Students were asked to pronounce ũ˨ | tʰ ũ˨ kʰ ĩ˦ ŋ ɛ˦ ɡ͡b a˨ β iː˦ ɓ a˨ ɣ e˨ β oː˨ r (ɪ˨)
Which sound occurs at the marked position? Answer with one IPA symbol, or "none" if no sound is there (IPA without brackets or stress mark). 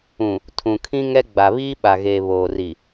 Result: i˨